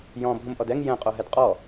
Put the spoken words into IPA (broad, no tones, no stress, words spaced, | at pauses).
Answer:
jɔ̃ bʱũmʔɔdɛŋ jɛ̃ qʼoɦɛdqʼɔ